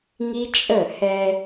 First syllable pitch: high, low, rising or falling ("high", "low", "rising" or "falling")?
high